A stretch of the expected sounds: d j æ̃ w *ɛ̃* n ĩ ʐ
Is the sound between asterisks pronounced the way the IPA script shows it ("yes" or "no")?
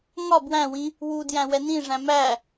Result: no